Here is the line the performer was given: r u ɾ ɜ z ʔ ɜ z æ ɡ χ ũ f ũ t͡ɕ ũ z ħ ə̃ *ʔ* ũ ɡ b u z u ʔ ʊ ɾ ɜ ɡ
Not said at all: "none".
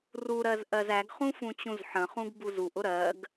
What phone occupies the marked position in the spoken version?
χ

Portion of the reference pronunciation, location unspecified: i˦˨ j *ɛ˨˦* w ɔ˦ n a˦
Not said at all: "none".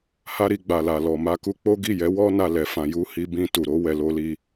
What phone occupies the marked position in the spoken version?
ɛ˨˦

